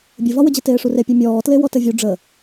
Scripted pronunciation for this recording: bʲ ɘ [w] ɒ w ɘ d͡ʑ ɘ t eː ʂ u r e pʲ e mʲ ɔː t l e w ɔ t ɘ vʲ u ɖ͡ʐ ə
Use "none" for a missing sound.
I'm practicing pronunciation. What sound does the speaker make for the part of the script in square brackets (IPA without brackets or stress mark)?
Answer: v